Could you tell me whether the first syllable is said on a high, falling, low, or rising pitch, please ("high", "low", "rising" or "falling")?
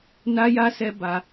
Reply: high